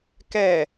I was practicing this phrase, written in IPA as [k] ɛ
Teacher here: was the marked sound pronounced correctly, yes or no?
yes